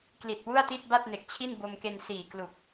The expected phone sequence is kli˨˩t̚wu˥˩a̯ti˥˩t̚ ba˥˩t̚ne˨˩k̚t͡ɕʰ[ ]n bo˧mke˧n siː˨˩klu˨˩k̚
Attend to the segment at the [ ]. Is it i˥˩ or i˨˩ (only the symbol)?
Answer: i˥˩